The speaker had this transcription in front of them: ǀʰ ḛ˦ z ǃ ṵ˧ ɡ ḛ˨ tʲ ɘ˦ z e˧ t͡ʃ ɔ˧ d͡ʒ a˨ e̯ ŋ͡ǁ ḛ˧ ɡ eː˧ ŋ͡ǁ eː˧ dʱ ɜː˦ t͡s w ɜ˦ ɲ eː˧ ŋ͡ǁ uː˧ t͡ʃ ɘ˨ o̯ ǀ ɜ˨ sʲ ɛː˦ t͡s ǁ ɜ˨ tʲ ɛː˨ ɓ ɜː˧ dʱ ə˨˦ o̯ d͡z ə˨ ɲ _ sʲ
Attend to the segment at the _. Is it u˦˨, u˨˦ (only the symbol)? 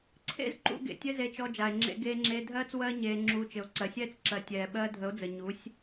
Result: u˨˦